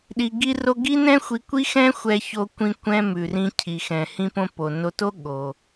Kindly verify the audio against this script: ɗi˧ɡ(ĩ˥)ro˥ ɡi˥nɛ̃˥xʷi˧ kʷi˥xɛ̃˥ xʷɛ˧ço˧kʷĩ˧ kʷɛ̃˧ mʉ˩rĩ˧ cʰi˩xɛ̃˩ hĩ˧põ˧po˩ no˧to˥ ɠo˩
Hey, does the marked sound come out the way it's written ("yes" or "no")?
no